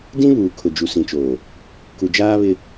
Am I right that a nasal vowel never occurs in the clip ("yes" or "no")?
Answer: no